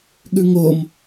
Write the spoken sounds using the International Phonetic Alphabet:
ɠ ʉ ŋ o m

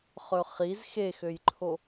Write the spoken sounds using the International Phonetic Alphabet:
χ ɵ χ i z x e x ø j ǃʰ o

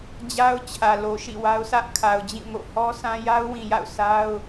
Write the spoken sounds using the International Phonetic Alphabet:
d͡ʑ a˦ ʊ̯ t͡ɕʰ ä˨ l o˨ ʃ ḭ˦˨ w a˦ ʊ̯ sʰ ä˦ ʔ kʰ a˨ ʊ̯ d͡ʑ ĩ˦˨ ŋ o̰˦˨ h ɔ˦ sʰ ã˦ j a˦ ʊ̯ w ĩ˨ j a̰˦˨ ʊ̯ sʰ a˦ ʊ̯

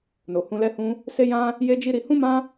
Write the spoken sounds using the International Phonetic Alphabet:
n o˨ h ũ˧ l ɛ˦ h ũ˦ | s e˦ j ã˦ | j e˦ d͡ʒ i˦ ɾ i˧ h ũ˦ m ã˦

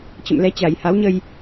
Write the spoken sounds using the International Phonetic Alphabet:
t͡ɕ ə̰˧˨ m l ɛ˨˦ t͡ɕ a˨˩ j h a˨˦ w ɲ ə˧ j

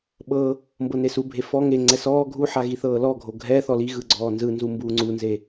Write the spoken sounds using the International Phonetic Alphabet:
ɓ ɤ | m b ɤ n e s u bʱ e f ɔ ŋ e ŋ͡ǀ ɛ s ɔː ɡʱ u ħ a ɣ i θ ɤː l ɔ ɡʱ o ɡʱ ɛ θ ɔ l i ɣ ɯ ɡ͡ǀ ɔː n z ɯ n z u m b uː ŋ͡ǀ u n z e

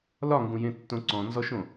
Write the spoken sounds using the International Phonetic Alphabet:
l ɒ ŋ ɡ ũ j ẽ tː õ ǀ ɔ̃ n z ɔ ʃ õ

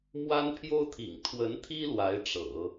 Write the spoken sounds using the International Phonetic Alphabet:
m w a˥ n pʰ j o˥ ʊ̯ t̪ʰ ḭ˨˩ ŋ t̪ʰ w ə˧˥ n t̪ʰ i˥ l w a˧˥ ɪ̯ ʈ͡ʂ ɤ̰˨˩˦

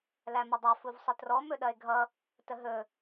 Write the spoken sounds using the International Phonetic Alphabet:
l æ m ɐ dˤ æ f u v sˤ ə t r ɔ m ɵ ɗ ɐ e̯ ɡʱ ʌ | t ə ɦ ɵ

